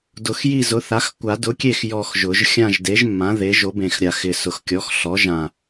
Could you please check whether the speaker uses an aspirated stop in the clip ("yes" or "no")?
no